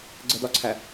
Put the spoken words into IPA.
ɡ͡ǀ ə d ɒ ǀʰ æ

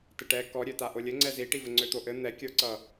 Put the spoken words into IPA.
t ɘ ʈ ɛ k ɔ ɾʲ ø t a ʔ o lʲ ɘ ŋ͡ǀ ɛ z i ʈ i v ɘ ŋ͡ǀ ø t̪ o ʔ ɘ n̪ ɛ kʲ ə˞ ǀ ʌ

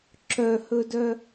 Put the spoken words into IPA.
ǁ œ h ɵ d œ

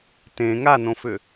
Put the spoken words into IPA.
t ẽ ŋ a n õ f ʏ

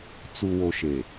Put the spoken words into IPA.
t͡s u˨ w o˨ ʃ e˨

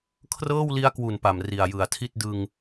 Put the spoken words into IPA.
kʰ r ɤː˥˩ w l i˦˥ a̯ k w u˨˩ n p a˨˩ m r i˨˩ a̯ j ɯ˨˩ a̯ tʰ i˥˩ t̚ d ɯ˧ ŋ

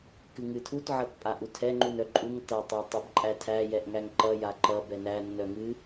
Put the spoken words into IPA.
k ɨ ŋ ɨ tʰ u t ʕ ʌ t pʼ a ʔ u tʰ ɛ ŋ͡ǃ u n œ ǃʼ u ŋ t a tˤ æ tˤ ʌ b ǃʼ æ tʰ æ j ɛ ʔ ŋ æ ŋ ǃ ʌ j a ǃ ʌ b ɛ n æ nː œ ŋ ɨ

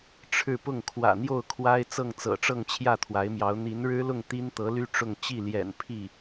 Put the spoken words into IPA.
ʈ͡ʂʰ ɻ̩˥˧ p ʊ˥˩ ŋ kʰ w ä̰˨˩ n̪ j o˥˩ ʊ̯ kʰ w a˥ ɪ̯ t͡s ɤ˥˩ ŋ t͡s ɤ̰˨˩ ʈ͡ʂ ɤ˥˧ ŋ t͡ɕʰ j ä˥˩ t̪ʰ w a˧˥ ɪ̯ m j ɑ˧˥ ʊ̯ n̪ i˧˥ n ɻ ɻ̩˥ l ʊ˥˩ ŋ t̪ i˥ n t̪ ɤ˧˥ l y˥ ʈ͡ʂ ʊ˥˧ ŋ t͡ɕ i˥˩ l j ɛ̰˨˩ n pʰ i˥˩

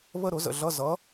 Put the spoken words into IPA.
β ə˥˧ ɾ ʊ˨˥ z ə̰˨ ɮ ʌ˧˥˧ z ʌ˨˥

